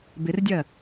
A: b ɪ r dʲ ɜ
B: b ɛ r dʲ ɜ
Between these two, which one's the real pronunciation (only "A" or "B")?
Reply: A